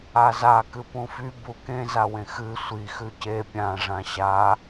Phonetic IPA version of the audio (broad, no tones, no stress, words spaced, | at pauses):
aza kɨpũfy bukẽ zawẽxɨ sʷi xʉce pʲã ʐãɕa